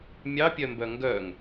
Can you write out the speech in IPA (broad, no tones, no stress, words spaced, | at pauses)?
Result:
mʲɑpʲœmbœ ŋɡœŋ